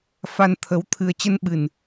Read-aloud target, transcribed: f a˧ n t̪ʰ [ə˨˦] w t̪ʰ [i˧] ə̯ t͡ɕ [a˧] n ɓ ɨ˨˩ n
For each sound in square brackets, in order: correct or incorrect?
correct, incorrect, incorrect

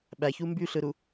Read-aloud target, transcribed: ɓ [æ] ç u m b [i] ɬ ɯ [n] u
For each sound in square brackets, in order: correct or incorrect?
correct, incorrect, incorrect

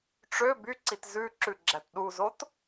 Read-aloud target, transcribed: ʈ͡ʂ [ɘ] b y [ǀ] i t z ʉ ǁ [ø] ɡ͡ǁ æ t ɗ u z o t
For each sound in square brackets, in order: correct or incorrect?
incorrect, correct, incorrect

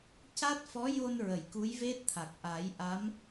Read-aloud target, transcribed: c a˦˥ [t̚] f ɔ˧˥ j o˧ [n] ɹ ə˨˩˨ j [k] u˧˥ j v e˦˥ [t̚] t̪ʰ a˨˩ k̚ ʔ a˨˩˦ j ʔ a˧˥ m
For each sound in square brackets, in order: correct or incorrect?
correct, correct, correct, correct

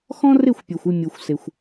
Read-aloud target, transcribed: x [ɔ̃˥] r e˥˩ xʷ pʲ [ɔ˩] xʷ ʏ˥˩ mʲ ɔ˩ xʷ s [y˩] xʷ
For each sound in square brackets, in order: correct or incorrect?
correct, correct, incorrect

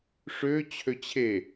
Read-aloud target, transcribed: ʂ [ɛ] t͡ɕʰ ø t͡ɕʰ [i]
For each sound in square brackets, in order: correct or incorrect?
incorrect, incorrect

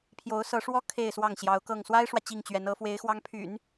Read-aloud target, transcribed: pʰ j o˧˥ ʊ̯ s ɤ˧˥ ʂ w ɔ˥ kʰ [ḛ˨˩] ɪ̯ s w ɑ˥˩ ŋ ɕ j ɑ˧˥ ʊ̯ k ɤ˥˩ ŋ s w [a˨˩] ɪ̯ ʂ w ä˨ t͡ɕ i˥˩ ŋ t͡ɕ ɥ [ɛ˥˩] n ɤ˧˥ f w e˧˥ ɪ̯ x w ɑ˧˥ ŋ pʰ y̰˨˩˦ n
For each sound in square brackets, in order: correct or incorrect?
incorrect, incorrect, incorrect

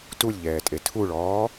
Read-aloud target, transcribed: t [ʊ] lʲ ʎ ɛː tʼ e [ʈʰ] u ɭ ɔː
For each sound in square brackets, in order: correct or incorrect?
incorrect, incorrect

